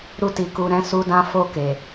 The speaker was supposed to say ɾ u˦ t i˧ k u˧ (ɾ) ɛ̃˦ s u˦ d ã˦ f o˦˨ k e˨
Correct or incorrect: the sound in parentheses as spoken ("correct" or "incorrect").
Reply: correct